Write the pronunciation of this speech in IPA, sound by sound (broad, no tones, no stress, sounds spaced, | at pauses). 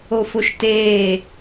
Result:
o f o ʃ t eː